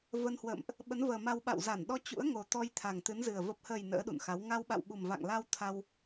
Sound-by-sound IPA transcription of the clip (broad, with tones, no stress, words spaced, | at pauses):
və˧nhwə̰ː˧˨mʔ | ɓə˨˦nvəː˨˩ma˧w ɓa̰˧˨wza˧˩nɗɔ˧ t͡ɕṵ˧˥ə̯ŋo˨˩t̪ɔ˧j t̪ʰa˨˩ŋt̪ɨ˨˦nzɨ˨˩ə̯ və˨˩p̚həː˨˩j nə̰ː˧˥ɗṵ˧˨nxa˨˦w ŋa˧wɓa̰˧˨w ɓu˨˩mva̰˧˨ŋla˧w t̪ʰa˧w